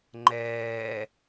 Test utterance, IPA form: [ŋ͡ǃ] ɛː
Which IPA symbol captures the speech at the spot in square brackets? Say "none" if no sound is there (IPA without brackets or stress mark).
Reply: ŋ͡ǃ